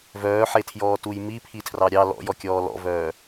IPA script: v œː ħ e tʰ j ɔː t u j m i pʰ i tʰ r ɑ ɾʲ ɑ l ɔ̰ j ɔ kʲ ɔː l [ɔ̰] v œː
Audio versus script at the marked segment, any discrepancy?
no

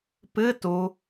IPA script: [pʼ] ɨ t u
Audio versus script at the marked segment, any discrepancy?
yes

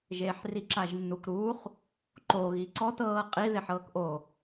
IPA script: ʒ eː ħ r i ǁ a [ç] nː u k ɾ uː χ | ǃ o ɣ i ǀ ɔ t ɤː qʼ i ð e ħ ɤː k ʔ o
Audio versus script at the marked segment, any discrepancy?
yes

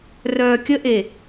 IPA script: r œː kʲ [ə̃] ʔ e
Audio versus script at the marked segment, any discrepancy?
yes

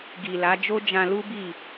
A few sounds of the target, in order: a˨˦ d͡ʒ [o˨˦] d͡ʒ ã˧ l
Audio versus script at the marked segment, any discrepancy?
yes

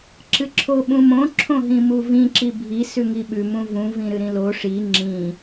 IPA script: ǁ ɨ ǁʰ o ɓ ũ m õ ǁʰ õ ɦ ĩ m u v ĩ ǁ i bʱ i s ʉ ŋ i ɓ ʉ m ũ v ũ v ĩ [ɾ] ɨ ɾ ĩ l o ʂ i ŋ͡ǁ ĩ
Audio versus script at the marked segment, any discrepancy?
no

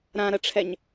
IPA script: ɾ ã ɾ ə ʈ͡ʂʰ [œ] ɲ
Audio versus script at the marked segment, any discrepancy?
yes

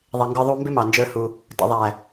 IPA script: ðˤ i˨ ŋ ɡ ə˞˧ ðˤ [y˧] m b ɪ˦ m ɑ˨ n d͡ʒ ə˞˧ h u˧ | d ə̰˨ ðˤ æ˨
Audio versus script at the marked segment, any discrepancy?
yes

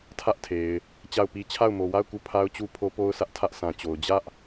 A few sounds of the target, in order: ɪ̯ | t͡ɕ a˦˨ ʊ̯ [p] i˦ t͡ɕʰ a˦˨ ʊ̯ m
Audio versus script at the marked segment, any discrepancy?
no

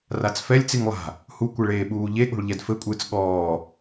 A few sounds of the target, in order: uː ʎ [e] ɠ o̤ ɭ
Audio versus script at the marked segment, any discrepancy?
no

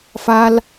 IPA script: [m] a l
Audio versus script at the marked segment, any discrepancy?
yes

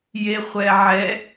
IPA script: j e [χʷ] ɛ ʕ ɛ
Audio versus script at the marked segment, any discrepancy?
no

